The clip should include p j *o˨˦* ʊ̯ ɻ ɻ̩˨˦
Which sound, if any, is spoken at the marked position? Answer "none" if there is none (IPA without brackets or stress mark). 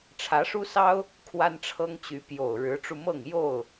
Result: o˨˩